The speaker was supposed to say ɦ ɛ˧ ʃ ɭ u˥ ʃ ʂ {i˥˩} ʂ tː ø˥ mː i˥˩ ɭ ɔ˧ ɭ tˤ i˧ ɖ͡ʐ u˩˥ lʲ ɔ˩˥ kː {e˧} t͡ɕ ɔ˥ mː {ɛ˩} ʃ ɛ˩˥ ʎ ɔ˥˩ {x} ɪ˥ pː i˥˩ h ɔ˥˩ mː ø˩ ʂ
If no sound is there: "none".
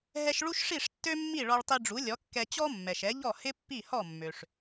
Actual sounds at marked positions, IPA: i˥˩, ɛ˧, ɛ˩, h

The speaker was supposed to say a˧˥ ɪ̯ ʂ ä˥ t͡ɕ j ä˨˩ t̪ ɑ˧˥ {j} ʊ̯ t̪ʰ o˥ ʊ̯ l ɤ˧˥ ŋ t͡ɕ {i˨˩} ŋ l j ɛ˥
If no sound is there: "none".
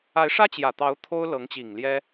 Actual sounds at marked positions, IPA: none, i˨˩

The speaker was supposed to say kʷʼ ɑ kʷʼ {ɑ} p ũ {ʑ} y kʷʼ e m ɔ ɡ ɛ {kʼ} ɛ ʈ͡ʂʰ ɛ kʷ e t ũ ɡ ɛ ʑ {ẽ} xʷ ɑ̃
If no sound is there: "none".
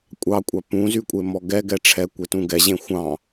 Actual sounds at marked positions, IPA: ɑ, z, ɡ, ẽ

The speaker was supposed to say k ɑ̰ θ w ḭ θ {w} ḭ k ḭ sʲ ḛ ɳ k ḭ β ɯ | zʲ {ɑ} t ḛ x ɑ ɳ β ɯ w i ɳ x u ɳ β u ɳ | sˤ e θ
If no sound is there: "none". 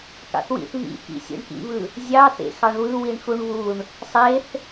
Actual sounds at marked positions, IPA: β, ɑ

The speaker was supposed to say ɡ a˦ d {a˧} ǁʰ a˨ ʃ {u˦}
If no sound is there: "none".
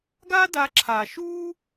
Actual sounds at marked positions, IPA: a˧, u˦

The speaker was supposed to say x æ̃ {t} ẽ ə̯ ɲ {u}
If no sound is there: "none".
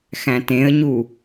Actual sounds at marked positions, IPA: t, u

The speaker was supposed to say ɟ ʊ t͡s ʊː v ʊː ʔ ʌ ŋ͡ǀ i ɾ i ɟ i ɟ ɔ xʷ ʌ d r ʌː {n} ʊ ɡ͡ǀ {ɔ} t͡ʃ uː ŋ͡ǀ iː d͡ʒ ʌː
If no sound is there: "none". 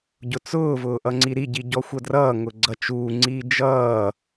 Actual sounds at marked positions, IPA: ŋ, ʌ

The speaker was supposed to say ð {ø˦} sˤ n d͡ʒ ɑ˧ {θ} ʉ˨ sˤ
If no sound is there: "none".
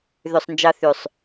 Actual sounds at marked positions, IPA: ø˨, θ

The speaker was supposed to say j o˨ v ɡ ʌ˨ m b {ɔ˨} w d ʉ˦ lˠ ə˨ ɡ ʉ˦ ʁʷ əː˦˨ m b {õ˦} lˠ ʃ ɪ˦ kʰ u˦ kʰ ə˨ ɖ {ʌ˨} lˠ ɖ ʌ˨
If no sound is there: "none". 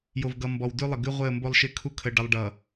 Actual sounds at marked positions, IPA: ɔ˨, o˦, ʌ˨

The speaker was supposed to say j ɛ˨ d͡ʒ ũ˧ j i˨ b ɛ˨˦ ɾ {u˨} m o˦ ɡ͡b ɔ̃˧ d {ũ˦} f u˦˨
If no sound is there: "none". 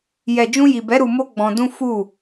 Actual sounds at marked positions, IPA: u˧, ũ˦

